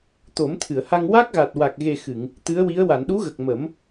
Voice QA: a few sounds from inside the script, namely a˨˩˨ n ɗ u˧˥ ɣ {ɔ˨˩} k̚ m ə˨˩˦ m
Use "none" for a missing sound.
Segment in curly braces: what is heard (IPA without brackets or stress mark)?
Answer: ə˨˩